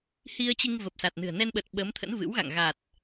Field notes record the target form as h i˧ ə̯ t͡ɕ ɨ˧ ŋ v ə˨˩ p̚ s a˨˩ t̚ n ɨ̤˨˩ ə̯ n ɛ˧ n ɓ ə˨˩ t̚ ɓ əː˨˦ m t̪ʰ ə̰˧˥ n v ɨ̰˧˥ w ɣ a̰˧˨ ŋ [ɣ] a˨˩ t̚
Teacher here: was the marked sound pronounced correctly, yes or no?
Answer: yes